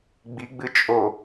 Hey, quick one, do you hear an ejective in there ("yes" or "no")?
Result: yes